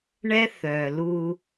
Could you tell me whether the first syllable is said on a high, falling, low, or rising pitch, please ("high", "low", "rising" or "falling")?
high